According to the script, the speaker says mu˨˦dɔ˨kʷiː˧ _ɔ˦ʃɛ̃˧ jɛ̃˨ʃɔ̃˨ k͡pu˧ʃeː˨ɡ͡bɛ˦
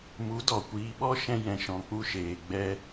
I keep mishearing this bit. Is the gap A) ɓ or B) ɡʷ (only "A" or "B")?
A